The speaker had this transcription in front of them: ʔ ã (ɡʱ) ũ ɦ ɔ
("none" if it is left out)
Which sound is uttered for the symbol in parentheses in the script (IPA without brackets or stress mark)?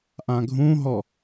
ɡʱ